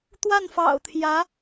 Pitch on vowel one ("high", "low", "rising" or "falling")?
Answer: falling